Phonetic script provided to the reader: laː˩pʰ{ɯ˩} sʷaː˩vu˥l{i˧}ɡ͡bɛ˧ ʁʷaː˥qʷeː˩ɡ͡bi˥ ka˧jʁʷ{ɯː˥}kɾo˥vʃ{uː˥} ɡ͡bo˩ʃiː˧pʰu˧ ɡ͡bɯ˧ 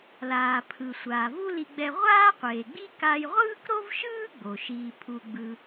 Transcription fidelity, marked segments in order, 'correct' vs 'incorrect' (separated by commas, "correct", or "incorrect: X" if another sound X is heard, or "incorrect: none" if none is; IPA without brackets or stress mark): correct, correct, correct, incorrect: ɯː˥